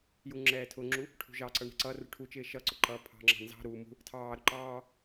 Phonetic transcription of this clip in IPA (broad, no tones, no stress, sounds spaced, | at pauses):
j u ŋ͡ǁ ɛː tʰ ʊ ŋ͡ǁ u | ʈʰ ṳ ʒ ɑ ǀ ʌ ɳ ɛ̤ ǀ ʌ r ṳ ʈʰ u t͡ʃ ɪː ʃ ʌ ǀ ʊ ǃ ʌː pʰ ɑ̤ ŋ͡ǁ ɑ̤ n z ɑ̤ ɾ u m ṳ | tʰ ɑː ɾ ʊ ǃ ɑː